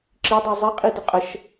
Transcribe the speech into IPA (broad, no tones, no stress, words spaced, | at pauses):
ǁidˤœ zˤiqʼidə qʼəʃ